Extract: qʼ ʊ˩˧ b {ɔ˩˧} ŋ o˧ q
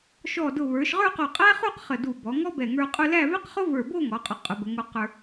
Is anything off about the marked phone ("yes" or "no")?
yes